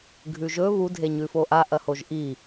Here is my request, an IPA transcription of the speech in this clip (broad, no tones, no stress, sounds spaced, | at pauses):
ɡʱ ʉ ʒ ɵ β u dʱ e ɲ ʉ f o ʔ a ʔ ɐ h o ʒ ʔ i